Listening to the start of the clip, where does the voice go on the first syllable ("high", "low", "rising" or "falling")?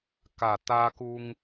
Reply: low